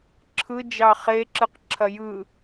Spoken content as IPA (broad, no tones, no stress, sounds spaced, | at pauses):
ǁʰ ɯ d͡ʒ ɑ χ e ǁ ɯ q ǁʰ ɐ j ɯ